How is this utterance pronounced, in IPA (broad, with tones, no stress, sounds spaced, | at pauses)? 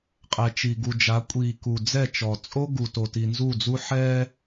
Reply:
qʼ ɛ˨ t͡ʃ i˨ ɡ u˨ d͡ʒ a˨˦ kʷʼ i˨ k u˨ d͡z ɛ˦˨ t͡ʃ ɔ˨ t͡sʼ o˦ ɡ u˨ t o˨ t i˨ n z u˦˨ d͡z u˦ ħ ɛ˦